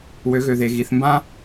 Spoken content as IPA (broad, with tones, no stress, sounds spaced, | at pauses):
w ø˩˧ ɣ ø˩ ð e˩ ɣ i˩˧ θ m b ã˧